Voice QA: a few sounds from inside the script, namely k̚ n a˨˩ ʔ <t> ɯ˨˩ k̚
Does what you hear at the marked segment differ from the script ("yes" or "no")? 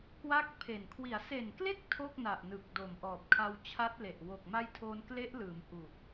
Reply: yes